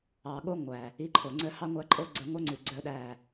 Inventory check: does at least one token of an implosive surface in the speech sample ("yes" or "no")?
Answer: yes